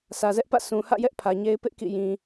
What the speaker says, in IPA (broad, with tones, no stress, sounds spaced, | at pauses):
sʰ ä˨ z ɛ˦ ʔ p ä̰˦˨ s ũ˨ h ä̰˦˨ j ɛ˦ ʔ pʰ ä˨ ɲ e˦ ɪ̯ p ɪ˦ ʔ k ḭ˦˨ j ĩ˨